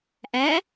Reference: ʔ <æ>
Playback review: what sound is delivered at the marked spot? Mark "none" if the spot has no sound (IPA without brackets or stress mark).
æ